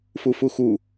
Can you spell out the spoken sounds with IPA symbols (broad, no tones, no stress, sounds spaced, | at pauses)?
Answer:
f u f u x u